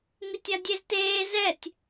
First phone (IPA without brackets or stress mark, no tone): m